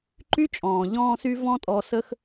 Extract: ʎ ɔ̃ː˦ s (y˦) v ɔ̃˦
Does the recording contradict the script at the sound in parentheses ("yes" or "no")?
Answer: no